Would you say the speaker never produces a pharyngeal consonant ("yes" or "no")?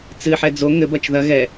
no